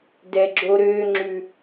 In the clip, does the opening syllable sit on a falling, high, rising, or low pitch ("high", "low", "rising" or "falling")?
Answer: low